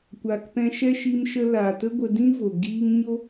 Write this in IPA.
kʷ aː˨ k p ɛ̃˧ ʃ ɛ˦ ʃ i˧ m ʃ ə˧ l aː˨ t ə˦ ɡʷ ə˧ d ĩ˦ v o˨ ɡ iː˧ ŋ ɲ o˦

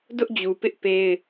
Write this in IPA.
d ʊ˦ ʔ d͡ʑ u˨ p ɪ˦ ʔ p e˦ ɪ̯

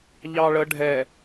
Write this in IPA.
ʎ ɑ ɭ ə ɖʱ ɛ

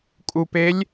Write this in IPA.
kʼ u p e lʲ

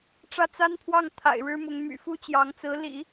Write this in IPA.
ʈ͡ʂ ä˥˩ t͡s a˥ n pʰ w ɑ˥˩ ŋ t̪ʰ a̰˨˩ ɪ̯ ɻ ɻ̩˥ m ʊ˧˥ ŋ m y̰˨˩ f u˥ t͡ɕ j ɑ˧˥ ŋ t͡s ɹ̩˧˥ l ḭ˨˩˦

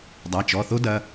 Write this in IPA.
dˤ a˩˧˩ t͡ʃ ɔ˩˧˩ θ o˥ d ɐ˩˧˩

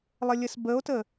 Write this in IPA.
lˠ ə lʲ ə s b ə o̯ t ə

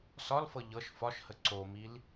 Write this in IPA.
s ɒ l f ɤ ʎ ɤ ʃ f ɒ ʃ h ə ǀ o m i l

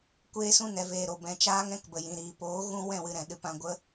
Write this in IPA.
kʷ eː˦ s ũ˦ n ɛ˨ v eː˨ ɾ o˨ b ɛ̃˨ t͡ʃ aː˦ ŋ ɛ̃˦ k b ə˨ j ĩ˨ ɾ iː˨ p oː˨˦ ɣ ũ˧ w ɛ̃˦˨ w ɨ˧ ɾ ɛ̃˨ ɗ ɨ˧ p ã˧ ɡʷ ə˦

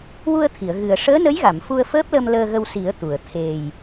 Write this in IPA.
w u˧ ə̯ t̪ʰ i˨˩˨ ə̯ ɣ ɨ˨˩ ə̯ ʂ əː˧˥ n ə˧˥ j ɣ a˨˩˨ m f u˧ ə̯ f əː˦˥ p̚ l ə˧ m l əː˧ ɣ ə˧ w s i˨˩˦ ə̯ t̪ u˨˩˨ ə̯ t̪ʰ e˨˩ j

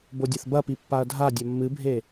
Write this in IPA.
b o dʲ ɐ θ b ɐ p i pː a ɐ̯ dʱ a dʲ ɐ mː ɨ bʱ e

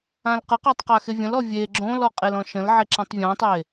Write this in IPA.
ã l q ə q a tˤ q a x e vʲ ə̃ l ɔ vʲ e ɡ͡ǁ õ l ɔ qʼ e l ɔ̃ ʃ ə̃ l ʕ e ǁ ã tˤ vʲ ɔ̃ tˤ e

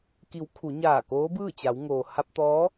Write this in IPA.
k i˩˧ w kʰ u˩˧ ɲ aː˧˩ k oː˧˥ b ɯː˥˨ t͡ɕ a˩˧ w ŋ oː˩ h a˧ p̚ t̪ ɔː˧˥

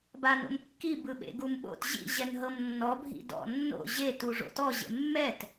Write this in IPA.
b a n o̰ m kː i b ɯ ɓ ḛ ɡ u m ɓ o̰ t ʑ ḭ ʑ ɛ n ɦ ɤ m nː ɔ bʱ ḭ d ɔ̰ nː o̰ ʑ e t u ʐ o̰ t ɔ ʑ ḛ mː ɛ t

